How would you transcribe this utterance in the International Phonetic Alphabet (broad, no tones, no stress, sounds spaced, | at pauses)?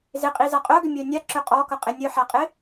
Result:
z ɪ qʼ i z a qʼ œ ɡ ʏ mʲ œ nʲ a ǁ ʏ qʼ ɔ k ʌ qʼ ɪ nʲ œ ħ a qʼ ɪ